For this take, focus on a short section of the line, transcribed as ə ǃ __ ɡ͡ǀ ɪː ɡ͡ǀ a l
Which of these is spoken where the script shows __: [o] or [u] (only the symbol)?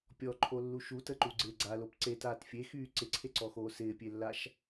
u